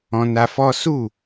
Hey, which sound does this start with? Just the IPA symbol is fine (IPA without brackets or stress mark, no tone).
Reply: ɔ̃